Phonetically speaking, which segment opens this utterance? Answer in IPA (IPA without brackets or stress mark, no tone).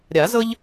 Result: ɾʲ